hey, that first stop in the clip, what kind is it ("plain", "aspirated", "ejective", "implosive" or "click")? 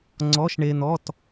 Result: click